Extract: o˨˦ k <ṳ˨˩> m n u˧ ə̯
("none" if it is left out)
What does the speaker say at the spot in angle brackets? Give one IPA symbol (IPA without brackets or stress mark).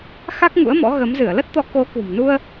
ṳ˨˩